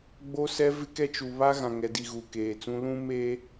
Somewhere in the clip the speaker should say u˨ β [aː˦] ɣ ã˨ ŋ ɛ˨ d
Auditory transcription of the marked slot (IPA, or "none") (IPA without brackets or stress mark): a˦